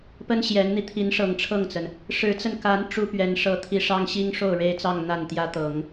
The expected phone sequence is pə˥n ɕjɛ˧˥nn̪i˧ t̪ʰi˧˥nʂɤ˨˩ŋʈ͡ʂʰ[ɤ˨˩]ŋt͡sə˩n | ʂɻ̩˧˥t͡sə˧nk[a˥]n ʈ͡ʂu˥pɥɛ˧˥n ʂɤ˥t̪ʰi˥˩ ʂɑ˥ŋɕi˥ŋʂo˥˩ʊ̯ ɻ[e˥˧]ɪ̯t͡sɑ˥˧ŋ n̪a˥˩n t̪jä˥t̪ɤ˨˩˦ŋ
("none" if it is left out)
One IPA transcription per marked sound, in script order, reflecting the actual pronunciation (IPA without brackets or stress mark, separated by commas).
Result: ɤ˥˩, a˧˥, e˥